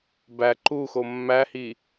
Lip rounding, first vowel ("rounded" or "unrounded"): unrounded